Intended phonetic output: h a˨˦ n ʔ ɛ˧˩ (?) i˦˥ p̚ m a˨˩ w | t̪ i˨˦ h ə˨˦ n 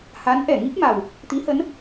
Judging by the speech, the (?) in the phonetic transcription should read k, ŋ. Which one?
ŋ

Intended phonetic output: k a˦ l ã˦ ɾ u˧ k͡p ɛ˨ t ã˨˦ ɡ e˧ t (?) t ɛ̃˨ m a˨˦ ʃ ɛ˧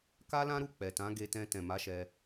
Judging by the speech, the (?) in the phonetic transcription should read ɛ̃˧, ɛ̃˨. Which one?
ɛ̃˧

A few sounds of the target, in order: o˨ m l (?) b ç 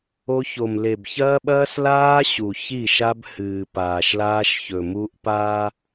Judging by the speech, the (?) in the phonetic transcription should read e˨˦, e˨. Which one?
e˨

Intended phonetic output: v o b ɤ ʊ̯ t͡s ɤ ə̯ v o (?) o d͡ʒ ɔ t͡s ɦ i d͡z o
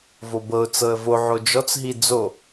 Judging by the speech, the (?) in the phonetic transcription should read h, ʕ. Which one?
ʕ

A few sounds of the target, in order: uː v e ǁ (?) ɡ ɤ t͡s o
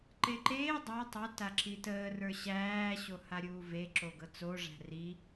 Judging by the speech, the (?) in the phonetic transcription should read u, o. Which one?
o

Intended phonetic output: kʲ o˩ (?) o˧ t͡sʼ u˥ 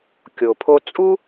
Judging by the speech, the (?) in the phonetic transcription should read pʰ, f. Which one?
pʰ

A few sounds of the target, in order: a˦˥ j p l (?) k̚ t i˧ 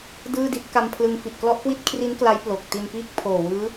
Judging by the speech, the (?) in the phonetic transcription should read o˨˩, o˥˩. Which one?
o˨˩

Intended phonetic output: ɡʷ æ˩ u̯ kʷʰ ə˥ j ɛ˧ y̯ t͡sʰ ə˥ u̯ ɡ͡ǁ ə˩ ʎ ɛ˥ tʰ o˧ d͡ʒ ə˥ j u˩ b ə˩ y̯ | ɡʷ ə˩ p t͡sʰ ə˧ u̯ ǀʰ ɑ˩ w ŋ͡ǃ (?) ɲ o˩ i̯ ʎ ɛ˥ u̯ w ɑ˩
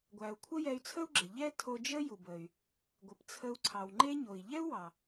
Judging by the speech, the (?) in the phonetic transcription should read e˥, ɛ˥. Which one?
e˥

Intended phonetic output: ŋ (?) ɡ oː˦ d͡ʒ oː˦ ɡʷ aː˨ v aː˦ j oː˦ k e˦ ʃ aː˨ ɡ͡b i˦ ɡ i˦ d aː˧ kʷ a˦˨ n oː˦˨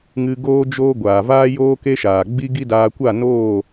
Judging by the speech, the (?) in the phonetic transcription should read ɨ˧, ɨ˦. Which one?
ɨ˧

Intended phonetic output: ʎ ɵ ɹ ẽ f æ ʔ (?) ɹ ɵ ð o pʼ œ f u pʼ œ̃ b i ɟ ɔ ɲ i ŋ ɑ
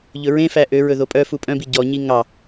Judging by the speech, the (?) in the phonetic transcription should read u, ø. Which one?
ø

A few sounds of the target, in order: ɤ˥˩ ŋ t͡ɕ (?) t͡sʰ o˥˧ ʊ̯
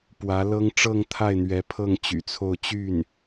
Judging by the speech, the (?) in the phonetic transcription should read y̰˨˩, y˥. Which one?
y̰˨˩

